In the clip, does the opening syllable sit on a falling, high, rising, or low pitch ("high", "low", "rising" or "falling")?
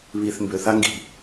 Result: low